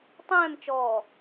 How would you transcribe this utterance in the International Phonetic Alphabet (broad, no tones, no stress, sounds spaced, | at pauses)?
tˤ ɛ̃ː m t͡ʃ ɔː